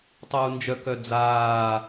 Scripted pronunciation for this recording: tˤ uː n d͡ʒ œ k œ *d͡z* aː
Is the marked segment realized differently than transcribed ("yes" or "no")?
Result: no